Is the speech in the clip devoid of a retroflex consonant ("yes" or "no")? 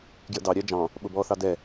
yes